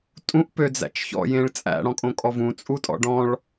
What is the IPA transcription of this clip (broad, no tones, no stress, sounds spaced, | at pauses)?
tʼ ũ ʔ p ø d͡z æ̰ t͡ʃ ç ɔ̰ j ẽ ɭ t͡sʼ æ̰ ɽ ɔ̃ kʼ õ kʼ ɔ v ũ t͡sʼ u tʼ ɔ̰ ɖ ɔ̃ ɭ